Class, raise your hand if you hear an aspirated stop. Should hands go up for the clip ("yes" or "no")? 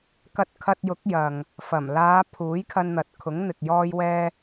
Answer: yes